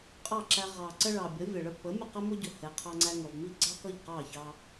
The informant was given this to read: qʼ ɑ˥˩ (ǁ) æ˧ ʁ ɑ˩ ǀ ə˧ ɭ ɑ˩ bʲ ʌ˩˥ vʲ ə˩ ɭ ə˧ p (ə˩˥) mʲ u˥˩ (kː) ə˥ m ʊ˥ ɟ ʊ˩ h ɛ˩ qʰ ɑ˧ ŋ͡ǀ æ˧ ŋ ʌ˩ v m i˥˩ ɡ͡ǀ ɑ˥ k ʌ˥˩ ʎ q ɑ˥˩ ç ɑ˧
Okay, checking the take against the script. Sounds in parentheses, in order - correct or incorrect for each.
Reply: correct, correct, incorrect: q

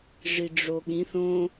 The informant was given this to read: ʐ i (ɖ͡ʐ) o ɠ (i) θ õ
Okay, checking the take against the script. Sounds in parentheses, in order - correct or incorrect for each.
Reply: correct, incorrect: ĩ

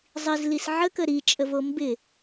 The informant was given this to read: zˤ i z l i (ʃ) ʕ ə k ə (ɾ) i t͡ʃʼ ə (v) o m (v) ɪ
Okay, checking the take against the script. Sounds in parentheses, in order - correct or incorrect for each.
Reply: incorrect: s, correct, correct, incorrect: b

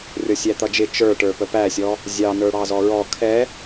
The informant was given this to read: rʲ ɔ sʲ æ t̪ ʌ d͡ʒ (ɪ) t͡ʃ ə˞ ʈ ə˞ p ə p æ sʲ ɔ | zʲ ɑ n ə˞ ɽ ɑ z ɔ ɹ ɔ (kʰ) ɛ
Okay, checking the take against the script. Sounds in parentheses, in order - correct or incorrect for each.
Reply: correct, correct

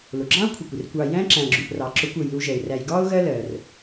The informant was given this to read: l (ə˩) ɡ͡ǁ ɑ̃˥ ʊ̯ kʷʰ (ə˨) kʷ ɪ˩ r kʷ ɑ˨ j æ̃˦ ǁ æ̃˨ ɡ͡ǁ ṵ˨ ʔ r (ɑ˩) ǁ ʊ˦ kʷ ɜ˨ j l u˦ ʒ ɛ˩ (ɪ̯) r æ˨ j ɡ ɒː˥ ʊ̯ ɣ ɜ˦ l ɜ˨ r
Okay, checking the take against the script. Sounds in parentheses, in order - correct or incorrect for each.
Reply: incorrect: ʊ˩, correct, incorrect: ɑ˨, correct

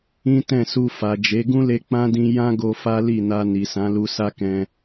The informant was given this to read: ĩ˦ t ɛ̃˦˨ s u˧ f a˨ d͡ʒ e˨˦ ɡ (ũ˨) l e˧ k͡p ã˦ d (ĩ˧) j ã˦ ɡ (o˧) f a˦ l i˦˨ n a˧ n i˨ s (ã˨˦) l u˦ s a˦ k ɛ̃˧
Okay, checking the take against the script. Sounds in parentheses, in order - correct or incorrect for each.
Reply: incorrect: ũ˦, correct, correct, correct

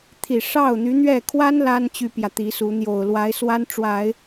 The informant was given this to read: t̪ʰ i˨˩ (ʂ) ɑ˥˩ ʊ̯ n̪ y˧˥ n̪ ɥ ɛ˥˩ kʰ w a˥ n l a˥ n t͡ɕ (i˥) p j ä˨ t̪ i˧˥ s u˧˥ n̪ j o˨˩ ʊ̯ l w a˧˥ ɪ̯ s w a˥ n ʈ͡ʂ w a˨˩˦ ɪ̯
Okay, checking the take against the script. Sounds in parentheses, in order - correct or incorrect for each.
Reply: correct, incorrect: y˥

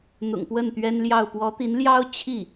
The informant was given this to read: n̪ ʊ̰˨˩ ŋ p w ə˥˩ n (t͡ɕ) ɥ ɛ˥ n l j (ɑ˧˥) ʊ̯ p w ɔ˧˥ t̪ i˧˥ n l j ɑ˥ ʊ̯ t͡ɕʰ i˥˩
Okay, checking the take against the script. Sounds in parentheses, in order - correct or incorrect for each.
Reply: incorrect: t̪, incorrect: ɑ˥˩

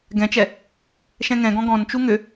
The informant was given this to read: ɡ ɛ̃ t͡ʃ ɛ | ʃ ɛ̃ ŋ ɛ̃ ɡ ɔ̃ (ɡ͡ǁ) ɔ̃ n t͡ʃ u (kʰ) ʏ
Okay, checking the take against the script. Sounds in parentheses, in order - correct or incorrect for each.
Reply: incorrect: ɡ, incorrect: ŋ

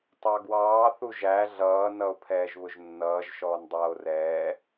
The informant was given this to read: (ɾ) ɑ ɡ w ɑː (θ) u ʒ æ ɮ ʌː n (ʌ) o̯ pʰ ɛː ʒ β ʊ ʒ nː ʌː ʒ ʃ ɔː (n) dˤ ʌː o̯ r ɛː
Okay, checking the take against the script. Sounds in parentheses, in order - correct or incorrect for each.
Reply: incorrect: tˤ, correct, correct, correct

